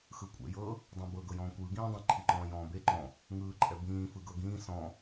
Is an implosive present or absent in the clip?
absent